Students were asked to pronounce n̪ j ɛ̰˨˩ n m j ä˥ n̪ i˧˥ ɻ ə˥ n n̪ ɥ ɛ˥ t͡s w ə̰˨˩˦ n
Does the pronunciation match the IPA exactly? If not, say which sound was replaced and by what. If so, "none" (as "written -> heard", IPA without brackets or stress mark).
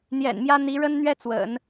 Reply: none